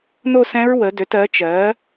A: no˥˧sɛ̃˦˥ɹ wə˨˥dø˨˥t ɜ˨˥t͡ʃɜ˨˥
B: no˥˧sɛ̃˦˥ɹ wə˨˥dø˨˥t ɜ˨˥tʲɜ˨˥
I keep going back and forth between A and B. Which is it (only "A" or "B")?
A